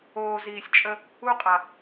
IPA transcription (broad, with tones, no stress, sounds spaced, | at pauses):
oː˨ z iː˨ sʲ t͡ʃʼ ə˧ | u˧ qʼ a˨